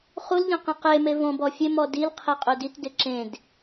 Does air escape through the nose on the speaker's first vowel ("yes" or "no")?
no